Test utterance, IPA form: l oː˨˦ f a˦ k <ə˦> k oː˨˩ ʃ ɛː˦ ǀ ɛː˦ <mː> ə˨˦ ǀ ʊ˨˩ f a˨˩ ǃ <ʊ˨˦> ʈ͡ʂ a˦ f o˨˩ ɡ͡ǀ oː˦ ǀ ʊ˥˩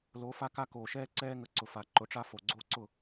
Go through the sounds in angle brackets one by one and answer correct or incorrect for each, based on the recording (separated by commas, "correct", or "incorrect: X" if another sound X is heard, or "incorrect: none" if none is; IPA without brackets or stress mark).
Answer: incorrect: a˦, incorrect: ŋ, correct